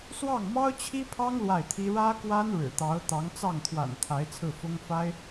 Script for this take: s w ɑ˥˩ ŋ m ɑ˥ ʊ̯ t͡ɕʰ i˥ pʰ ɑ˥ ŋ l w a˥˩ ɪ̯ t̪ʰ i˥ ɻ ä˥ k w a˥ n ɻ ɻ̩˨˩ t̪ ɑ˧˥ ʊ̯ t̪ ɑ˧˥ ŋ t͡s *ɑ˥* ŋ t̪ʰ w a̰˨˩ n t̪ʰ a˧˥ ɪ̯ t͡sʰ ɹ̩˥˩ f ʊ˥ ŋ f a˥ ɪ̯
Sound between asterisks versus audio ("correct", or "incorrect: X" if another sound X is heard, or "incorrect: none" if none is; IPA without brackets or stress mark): incorrect: ɑ˥˩